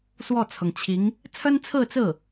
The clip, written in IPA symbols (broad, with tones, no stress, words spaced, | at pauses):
swɔ˥˩t͡sʰɤ˩ŋt͡ɕʰi˧˥ŋ | t͡sʰə˥nt͡sʰɹ̩˥˧t͡sɹ̩˥˩